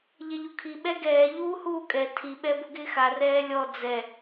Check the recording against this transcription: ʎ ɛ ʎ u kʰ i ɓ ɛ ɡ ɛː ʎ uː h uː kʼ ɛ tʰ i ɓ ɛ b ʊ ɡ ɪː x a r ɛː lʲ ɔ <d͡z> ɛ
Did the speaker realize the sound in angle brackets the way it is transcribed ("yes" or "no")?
yes